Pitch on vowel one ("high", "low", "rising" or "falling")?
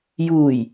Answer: low